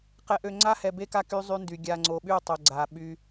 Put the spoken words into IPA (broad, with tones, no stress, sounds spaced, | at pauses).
q ɛ˨ ʔ ø˨ ŋ͡ǀ a˦ h ɛ˨ b e˦ k a˦ k y˦ zˤ y˦ n d y˨ ɡʲ a˨ ŋ͡ǀ o˨ ɓ y˦˨ tˤ œ˨ ɡ͡ǀ a˨ ɓ y˦